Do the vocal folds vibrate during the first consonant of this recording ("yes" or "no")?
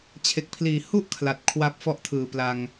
no